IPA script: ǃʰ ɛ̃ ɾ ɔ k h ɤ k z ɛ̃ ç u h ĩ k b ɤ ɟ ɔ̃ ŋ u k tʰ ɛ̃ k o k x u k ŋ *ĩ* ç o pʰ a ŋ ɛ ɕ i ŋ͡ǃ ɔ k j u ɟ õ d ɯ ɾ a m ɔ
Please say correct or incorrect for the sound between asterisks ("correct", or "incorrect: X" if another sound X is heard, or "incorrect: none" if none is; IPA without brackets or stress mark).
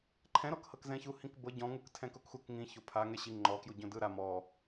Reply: correct